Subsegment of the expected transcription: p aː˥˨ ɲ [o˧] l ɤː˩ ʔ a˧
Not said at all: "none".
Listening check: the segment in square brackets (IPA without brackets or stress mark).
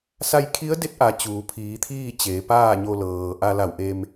o˧